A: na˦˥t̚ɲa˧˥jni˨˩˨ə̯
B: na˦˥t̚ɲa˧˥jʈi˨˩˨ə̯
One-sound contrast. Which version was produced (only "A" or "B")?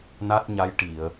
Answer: B